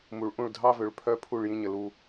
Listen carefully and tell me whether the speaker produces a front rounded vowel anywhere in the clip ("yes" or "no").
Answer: yes